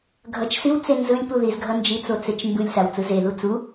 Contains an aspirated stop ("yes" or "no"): no